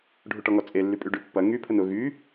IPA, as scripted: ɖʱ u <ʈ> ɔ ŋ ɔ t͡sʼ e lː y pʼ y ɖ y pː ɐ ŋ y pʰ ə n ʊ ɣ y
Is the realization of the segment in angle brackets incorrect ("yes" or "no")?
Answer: no